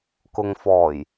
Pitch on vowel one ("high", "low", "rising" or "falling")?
low